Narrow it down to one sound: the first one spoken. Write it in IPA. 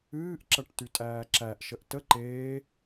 ɨː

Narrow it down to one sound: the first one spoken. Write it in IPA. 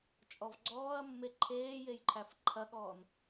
t͡ʃʼ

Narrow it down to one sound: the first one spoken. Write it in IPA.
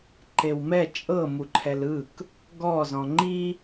ǃ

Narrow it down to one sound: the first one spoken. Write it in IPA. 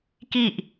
k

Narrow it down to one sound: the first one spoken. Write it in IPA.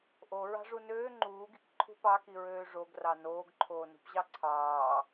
ʔ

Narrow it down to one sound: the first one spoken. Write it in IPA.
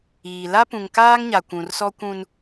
iː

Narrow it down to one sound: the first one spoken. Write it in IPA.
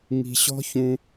ŋ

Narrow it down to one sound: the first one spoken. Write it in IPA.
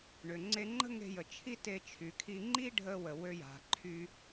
ɳ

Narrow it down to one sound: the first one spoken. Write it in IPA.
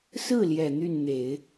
s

